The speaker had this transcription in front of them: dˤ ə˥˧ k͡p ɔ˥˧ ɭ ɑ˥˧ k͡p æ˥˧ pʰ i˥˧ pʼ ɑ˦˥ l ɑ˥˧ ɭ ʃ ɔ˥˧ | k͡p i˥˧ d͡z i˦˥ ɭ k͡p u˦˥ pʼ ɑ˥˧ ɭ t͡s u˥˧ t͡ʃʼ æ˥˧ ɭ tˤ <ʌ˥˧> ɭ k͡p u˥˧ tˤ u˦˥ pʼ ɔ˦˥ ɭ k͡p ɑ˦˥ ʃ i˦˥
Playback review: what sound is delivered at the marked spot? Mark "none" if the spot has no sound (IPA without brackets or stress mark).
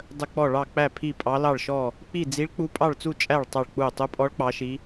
ɑ˥˧